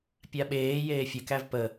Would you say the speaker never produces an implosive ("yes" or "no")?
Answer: no